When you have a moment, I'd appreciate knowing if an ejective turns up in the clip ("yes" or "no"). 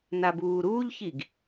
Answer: no